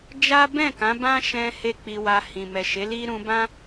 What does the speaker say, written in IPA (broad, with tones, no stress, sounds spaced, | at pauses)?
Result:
d͡ʒ a˦ b ɛ̃˦˨ k ã˨˦ b ã˦ ʃ ɛ̃˧ h e˦ k͡p i˧ w a˧ h ĩ˨ m ɛ˨ ʃ e˨˦ l i˦ ɾ ũ˧ b ã˦